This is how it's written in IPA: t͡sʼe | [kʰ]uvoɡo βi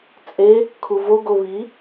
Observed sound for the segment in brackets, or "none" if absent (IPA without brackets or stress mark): kʰ